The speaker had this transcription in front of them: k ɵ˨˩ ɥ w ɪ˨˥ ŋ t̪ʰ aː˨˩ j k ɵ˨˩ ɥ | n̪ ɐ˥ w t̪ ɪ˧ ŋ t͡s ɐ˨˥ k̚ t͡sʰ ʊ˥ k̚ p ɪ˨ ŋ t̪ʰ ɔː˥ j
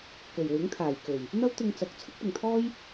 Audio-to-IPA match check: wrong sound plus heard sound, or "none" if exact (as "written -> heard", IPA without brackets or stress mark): none